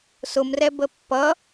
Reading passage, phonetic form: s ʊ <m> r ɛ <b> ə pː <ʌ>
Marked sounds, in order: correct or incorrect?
correct, correct, correct

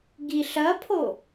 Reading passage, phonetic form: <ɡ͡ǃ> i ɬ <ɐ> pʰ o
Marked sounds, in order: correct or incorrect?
incorrect, correct

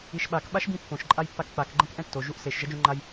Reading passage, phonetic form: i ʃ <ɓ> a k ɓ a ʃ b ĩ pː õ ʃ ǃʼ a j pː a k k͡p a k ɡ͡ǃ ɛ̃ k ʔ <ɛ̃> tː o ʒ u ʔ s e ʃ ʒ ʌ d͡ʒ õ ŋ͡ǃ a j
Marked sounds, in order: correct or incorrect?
correct, correct

